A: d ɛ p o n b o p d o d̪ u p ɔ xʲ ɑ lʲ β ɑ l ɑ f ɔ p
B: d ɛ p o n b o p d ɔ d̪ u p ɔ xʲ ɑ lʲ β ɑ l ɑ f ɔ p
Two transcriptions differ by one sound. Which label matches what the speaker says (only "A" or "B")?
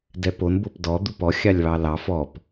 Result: B